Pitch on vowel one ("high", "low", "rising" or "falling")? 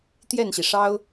falling